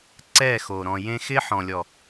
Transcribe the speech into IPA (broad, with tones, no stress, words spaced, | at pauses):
ǀɛ˦˨xo˨ ɾɔ̃˨jẽ˦ xɪ˦ħɔ̃˨ lʲɔ˨